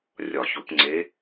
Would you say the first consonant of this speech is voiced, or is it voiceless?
voiced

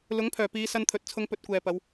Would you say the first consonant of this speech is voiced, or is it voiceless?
voiced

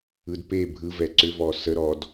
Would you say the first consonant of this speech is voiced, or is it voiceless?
voiced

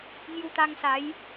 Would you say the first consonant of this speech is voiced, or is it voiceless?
voiced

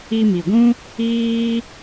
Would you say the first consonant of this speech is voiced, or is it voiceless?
voiced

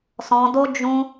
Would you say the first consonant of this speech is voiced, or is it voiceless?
voiceless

